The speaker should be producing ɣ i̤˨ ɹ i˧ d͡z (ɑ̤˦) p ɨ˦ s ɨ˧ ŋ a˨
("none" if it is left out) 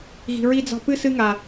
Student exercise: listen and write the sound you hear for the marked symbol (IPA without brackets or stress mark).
ɑ̤˧